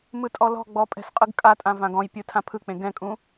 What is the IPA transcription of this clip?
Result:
mɯtʼɔlɔ̤ɡ͡bɔ pʼɛ̤sqʼɯɡkʼatʼã vãɡɔ̃jpʲɯ tʰãpʰɯk͡pẽ ɡɛ̃kʼũ

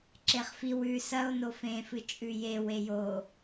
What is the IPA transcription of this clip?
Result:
ǁeχfiw ʉ sɐo̯no fẽfɨ t͡ʃʼʉje wejo

